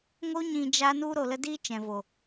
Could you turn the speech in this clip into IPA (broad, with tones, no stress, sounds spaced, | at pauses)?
ŋ o˦ ɲ ĩ˧ d͡ʒ a˦ n u˦ ɾ o˧ l ə˦ d i˦ t͡ʃ ɛ̃˨ v o˨